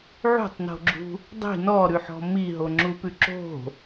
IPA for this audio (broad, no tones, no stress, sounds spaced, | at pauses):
ʕ ṳ tˤ n o̤ ɡ͡ǁ ṳ | dˤ i̤ n ɔ ɾ ʉ ħ ɔ̤ m i ɦ o ŋ͡ǁ u p ʉ ǁ o̤